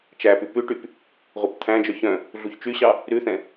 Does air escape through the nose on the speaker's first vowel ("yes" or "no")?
no